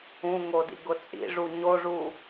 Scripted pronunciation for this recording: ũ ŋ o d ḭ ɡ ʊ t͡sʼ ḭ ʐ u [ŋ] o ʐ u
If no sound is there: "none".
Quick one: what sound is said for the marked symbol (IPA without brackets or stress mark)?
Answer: ɲ